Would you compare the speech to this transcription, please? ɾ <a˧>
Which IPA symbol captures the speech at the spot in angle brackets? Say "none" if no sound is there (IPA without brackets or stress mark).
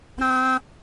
ã˧